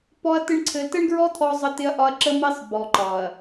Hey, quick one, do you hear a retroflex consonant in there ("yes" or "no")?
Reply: yes